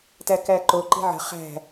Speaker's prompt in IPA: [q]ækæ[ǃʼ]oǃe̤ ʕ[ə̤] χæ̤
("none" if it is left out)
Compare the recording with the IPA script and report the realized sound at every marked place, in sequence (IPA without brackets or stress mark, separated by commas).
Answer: t, ǃ, ə̤